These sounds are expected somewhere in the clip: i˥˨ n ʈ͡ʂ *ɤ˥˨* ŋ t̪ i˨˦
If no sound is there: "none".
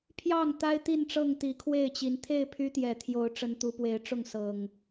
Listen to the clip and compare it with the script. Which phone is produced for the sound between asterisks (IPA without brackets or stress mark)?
ɤ˥˨